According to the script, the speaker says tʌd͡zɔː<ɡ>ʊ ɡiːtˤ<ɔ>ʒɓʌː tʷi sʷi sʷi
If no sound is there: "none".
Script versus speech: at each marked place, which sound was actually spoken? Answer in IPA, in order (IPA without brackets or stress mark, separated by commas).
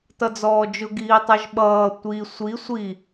d͡ʒ, ʌ